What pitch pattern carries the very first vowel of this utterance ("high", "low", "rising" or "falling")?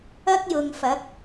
high